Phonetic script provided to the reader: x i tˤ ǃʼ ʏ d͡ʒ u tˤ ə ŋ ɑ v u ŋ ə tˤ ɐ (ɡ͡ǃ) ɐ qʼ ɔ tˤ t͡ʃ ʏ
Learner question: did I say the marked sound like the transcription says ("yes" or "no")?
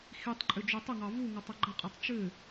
yes